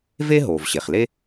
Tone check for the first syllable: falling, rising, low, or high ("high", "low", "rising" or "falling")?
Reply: high